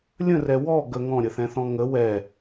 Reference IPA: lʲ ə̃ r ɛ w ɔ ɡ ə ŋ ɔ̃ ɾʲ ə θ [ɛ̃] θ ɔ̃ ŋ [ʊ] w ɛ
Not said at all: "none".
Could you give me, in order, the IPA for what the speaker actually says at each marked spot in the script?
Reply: ɛ̃, ə

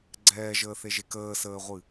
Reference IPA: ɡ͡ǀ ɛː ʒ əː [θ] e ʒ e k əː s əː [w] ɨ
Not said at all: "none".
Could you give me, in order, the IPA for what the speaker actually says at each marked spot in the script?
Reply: θ, ʁʷ

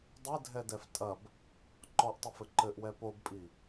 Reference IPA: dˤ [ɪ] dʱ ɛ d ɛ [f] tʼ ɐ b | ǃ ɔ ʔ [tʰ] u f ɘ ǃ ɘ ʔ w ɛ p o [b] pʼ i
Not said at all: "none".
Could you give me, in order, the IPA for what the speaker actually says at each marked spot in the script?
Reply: ɛ, f, tˤ, b

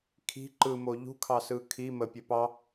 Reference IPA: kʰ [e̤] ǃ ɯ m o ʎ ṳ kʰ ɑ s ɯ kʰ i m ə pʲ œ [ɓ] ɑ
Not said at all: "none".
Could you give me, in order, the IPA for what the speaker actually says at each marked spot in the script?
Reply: i̤, p

